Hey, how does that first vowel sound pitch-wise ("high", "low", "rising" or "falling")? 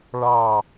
low